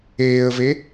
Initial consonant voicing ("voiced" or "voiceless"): voiced